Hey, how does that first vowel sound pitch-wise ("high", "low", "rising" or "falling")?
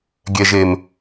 low